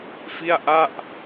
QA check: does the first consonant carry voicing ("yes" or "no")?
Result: no